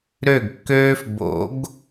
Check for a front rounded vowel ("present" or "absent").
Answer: present